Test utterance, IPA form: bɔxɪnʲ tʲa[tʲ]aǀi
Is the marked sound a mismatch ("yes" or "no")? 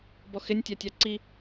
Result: no